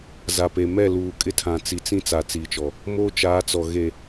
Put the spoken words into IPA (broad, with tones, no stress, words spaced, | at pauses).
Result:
za˨pe˨ mɛ˦˨luː˨ kʼɪ˦tʰã˨ t͡si˨t͡sĩ˦ t͡sa˨t͡siː˨t͡ʃɔ˨ | moː˦t͡ʃaː˨˦t͡sɔ˨ ɣe˨